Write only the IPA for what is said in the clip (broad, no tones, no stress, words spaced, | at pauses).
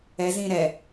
ɛ zĩ ɾɛ